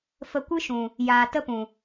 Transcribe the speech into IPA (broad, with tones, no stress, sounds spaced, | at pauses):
f ə˧ kʷ ɨ˦ ʃ ũ˨ | j aː˧ t ə˦ p ũ˨